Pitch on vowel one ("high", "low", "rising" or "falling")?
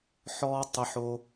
high